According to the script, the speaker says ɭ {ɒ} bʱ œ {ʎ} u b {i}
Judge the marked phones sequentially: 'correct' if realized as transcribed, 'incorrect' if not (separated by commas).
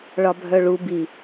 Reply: correct, incorrect, correct